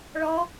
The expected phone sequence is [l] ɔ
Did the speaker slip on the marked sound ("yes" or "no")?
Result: yes